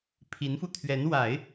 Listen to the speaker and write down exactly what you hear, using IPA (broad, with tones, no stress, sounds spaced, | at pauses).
pʰ i˧˥ n f u˧ t̪ʰ ɥ ɛ˧˥ n w a˨˩˦ ɪ̯